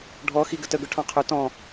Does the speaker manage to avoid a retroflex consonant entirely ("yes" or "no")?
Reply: no